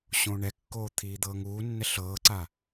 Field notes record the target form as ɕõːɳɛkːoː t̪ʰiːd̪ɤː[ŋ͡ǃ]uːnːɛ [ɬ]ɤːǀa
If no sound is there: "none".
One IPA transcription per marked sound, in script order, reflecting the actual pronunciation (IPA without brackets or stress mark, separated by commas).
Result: ŋ, ɬ